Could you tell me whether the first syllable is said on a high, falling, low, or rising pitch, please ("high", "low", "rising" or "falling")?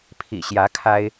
low